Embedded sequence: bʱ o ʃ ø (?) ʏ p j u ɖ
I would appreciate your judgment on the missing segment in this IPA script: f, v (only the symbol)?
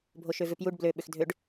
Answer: v